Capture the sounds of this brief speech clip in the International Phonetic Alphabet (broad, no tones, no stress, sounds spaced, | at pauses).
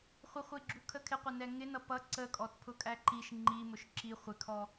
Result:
χʷ ə χʷ i ɡ͡ǁ u kʰ ə kʰ ɪ qʷ ɛ n ɛ ŋ ɪ n ʌ p ʌ ǀ ə kʼ ɔ t pʰ ʊ kʼ æ ǃ i ʃ ŋ͡ǃ i m ʊ ʃ ǁ i χʷ ɪ kʰ ɔ